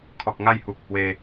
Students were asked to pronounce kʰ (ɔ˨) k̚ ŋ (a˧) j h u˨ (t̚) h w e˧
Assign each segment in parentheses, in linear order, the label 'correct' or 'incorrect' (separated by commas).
correct, incorrect, incorrect